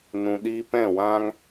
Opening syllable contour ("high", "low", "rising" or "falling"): low